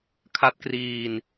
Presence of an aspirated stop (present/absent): present